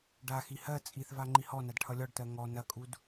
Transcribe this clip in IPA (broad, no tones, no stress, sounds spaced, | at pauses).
ɖ a x i h ɜ t͡sʼ i θ v a ŋ͡ǃ i h ɔ n a d ʈʰ ʌ lʲ ɔ ɖ t ɜ ŋ ɔ n ɐ kʼ u d